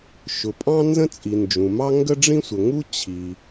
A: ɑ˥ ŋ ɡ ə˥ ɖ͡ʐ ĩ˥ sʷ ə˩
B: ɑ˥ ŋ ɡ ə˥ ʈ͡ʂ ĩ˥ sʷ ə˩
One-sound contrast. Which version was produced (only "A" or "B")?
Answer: A